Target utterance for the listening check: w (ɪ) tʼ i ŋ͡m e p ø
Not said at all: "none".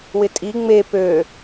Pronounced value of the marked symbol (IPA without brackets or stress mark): ɪ